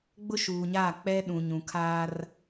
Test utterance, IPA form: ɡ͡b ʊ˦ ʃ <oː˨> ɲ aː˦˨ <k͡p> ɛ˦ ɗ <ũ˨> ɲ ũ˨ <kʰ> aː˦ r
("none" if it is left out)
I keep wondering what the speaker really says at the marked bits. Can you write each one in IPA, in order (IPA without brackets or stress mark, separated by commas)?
uː˨, k͡p, ũ˨, kʰ